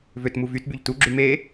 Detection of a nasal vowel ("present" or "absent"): absent